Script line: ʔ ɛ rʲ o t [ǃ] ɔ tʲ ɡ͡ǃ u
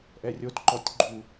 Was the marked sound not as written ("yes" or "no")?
no